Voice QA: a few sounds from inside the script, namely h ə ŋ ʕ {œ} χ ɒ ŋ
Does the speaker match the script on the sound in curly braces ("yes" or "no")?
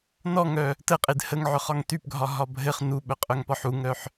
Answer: yes